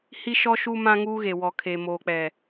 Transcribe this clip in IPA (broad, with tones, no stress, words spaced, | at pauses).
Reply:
hi˦ʃɔ˦ ʃu˦mã˦ ŋuː˦ɣe˨ wɔ˨kʰe˨moː˨k͡pɛ˨